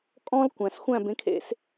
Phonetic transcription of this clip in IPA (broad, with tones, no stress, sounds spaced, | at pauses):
kʼ ɔ̃˥ l kʷ æ̃˩ s xʷ æ̃˥˩ b ẽ˩˥ kʰ ḛ˧ s